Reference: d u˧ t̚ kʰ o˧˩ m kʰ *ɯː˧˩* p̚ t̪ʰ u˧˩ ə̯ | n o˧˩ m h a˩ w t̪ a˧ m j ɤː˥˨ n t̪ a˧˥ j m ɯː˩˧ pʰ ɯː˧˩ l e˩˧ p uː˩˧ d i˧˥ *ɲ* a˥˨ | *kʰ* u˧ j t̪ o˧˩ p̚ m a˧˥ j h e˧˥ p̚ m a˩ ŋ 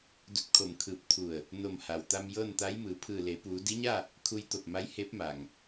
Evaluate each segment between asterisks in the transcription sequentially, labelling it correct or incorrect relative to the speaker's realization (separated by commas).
correct, correct, correct